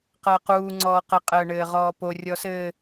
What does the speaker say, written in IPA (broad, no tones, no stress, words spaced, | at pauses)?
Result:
qəːquːŋ͡ǀɔː qɘqʼəː ɳɘːʁɔːpo rʲɔsɘː